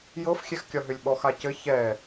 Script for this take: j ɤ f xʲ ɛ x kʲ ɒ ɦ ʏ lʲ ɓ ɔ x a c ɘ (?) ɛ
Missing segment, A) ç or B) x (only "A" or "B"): A